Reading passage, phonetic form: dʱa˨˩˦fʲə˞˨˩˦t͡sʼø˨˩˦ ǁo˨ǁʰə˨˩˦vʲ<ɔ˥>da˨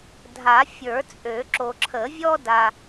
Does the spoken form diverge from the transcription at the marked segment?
no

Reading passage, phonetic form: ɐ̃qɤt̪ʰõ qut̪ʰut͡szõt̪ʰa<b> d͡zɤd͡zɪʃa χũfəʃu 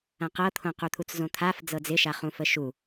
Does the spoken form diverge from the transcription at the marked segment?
yes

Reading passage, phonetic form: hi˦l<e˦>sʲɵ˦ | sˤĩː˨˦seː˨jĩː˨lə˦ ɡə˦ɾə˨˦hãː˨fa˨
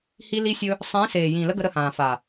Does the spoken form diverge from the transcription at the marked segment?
yes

